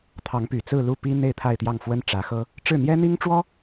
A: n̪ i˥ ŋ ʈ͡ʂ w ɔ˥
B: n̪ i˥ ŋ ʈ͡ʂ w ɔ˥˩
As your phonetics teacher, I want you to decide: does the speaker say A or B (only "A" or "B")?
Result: A